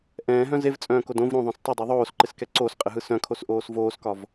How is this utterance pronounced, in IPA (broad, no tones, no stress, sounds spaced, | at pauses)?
ʔ ɛ̃ː ɦ œ̃ z e v t͡sʼ œ̃ː k o d õ v ɾ õ ðˤ œ̃ s tˤ ɪ dˤ e ðˤ oː s ǃ ɪ s k ɛ ǀ o s qʼ ɪ ɦ ɯ s œ̃ kʰ o s ʔ oː s v oː s k ɒ v